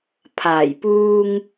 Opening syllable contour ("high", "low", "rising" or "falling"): low